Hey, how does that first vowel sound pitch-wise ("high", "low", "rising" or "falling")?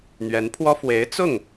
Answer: rising